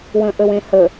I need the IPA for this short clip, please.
w ə̃ ʔ ə w ẽ h ə

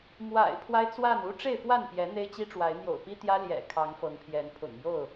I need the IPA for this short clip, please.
m w a̰˨˩ ɪ̯ pʰ w a˦ ɪ̯ t͡s w a˥˨ n u˦ ʈ͡ʂ e˥˨ ɪ̯ f w a˥˨ n p j ɛ˨˦ n̪ e˦ ɪ̯ t͡ɕ i˦ ʈ͡ʂ w a˨˦ ɪ̯ n̪ j o̰˨˩ ʊ̯ p i˦ t̪ j ä˦ l j ɛ̰˨˩ kʰ ɑ˨˦ ŋ f ɤ˨˦ ŋ pʰ j ɛ˨˦ n pʰ ʊ̰˨˩ ŋ j o˥˨ ʊ̯

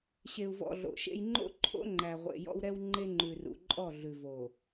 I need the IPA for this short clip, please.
ɕ e˨ u̯ v ɔ̰˨ ɮ o̰˨ ʃ ḛ˦ j ŋ͡ǃ o̰˦ ǃʰ o̰˦ ŋ͡ǃ æ˨ ʁʷ ḛ˨ j ɔ̰˦ w ɾ ɛ˦ w ŋ͡ǃ e˦ ŋ͡ǃ ʉ˨ r ṵ˨ ǃʼ ɔ˦˨ ɮ ʉ˨ v o˨

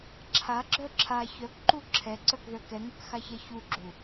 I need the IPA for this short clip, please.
ǁʰ a ɡ͡ǁ œ ǁʰ a ç œ k ǃ u ǁʰ ɛ ǀ œ k ð œ k ɛ ŋ œ k x a ç ɛ ç u ɡ͡ǁ u

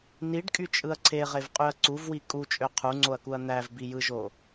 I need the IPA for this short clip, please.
n i ɖ kʼ y t͡ʃʼ ɯ ɐ̯ ǀʰ e ʁ e v qʼ y ɐ̯ ǀ u v w i kʼ u t͡ʃʼ ø qʰ u ŋ͡ǀ o ɐ̯ k u ɐ̯ n̪ æ v b i j ɯ ʒ o

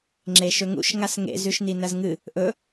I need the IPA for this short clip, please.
ŋ͡ǁ e ʃ ɵ ŋ ṵ ʃ ŋ a s ŋ ḛ z ʉ ʃ n i n ɐ z ŋ ɨ | ʔ ɵ

